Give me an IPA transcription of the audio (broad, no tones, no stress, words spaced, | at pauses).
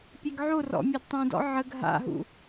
pʲeɡʕorɔ̰ mʲœdtˤũdɔ̰ ʕəɡ ɦa̰ɦṵ